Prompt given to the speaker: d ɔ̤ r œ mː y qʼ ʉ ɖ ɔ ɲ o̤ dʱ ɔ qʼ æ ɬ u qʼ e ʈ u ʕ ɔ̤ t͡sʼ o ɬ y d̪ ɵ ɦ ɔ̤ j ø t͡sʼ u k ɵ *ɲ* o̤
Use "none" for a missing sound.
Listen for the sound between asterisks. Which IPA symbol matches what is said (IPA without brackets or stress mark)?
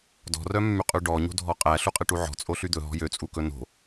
n